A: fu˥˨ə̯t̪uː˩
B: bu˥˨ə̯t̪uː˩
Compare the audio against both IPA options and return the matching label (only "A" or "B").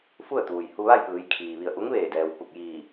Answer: A